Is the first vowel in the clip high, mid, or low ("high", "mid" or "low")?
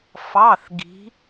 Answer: low